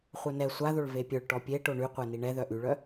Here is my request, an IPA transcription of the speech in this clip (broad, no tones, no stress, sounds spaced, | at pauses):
χʷ œ n ɛ sʷ a ð o ɭ v e pʲ œ ɭ ʈ ɔ pʲ e ʈ o ɳ y qʷ ɛ n i ɳ ɛ ð œ ʔ y ɭ œ